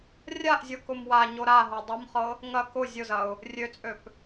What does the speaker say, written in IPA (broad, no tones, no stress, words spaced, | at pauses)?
rʲaʔzʲɤkʊm waɲo ɾaɦo dˤʊmχɤ | ŋɐ kʊ zʲʊzɐʊ̯ | rʲøt͡sʼøp